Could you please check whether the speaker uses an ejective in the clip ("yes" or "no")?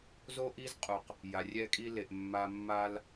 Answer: yes